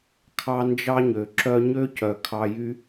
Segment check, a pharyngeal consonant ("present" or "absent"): absent